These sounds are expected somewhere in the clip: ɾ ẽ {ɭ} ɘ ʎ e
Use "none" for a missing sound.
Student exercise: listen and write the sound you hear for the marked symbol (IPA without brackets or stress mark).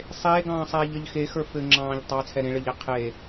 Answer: ɭ